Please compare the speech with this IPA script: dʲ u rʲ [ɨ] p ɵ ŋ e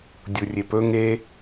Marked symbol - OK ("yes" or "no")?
no